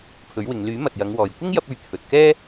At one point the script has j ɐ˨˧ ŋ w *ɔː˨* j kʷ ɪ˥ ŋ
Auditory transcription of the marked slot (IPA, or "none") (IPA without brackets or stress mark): ɔː˨